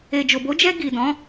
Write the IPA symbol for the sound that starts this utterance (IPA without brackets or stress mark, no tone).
e